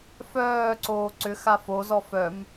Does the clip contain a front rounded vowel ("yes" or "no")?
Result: yes